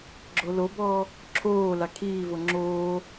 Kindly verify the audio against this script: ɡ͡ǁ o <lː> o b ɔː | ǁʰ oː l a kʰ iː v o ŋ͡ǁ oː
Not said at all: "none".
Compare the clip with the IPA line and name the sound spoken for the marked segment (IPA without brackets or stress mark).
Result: l